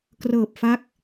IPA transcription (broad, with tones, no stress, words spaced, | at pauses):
krɤː˨˩p̚ fa˦˥k̚